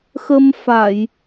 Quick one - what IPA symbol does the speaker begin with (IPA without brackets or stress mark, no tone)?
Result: x